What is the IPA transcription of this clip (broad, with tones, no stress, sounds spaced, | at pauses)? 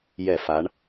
j ɛ˧˩˧ f a˩˧ ɳ